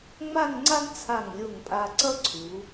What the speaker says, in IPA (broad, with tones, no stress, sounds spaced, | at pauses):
ŋ͡m a˥˧ ŋ ŋ͡ǀ a˥ ŋ t͡sʰ a˧˩ ŋ lʲ o˧˩ ŋ pʼ a˧ ǀ ʌ˥ ǀʰ u˩˧